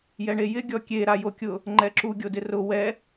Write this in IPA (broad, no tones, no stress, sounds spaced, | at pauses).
j ɛ ɳ e j ɪ ɡʲ ɔ kʲ e ɾ a j o kʲ ʊ | ŋ͡ǃ ɛ ǁ u ɡʲ o d ɪ r ʊ w ɛ